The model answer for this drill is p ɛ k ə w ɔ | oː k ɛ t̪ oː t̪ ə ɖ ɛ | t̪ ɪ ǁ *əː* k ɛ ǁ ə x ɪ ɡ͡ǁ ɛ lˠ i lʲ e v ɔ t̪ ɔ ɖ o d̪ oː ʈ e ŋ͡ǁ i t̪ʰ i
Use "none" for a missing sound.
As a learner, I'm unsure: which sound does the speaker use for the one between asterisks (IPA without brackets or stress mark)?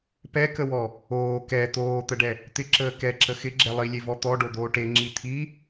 əː